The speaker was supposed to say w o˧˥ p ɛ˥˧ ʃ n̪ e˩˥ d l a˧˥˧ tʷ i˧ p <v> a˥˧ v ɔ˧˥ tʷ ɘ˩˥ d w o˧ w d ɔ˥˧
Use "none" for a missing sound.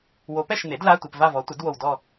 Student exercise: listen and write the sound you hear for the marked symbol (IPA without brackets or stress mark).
v